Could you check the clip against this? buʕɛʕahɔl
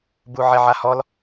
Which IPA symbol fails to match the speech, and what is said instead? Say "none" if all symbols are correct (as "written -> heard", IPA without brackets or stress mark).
none